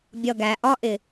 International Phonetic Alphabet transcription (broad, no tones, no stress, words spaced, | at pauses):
bʲʌ ɡæ ʔɒʔɪ